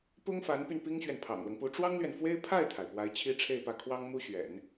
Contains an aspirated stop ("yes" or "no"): yes